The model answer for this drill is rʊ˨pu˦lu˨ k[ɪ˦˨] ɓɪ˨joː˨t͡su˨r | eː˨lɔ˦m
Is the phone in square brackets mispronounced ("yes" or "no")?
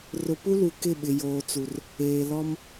no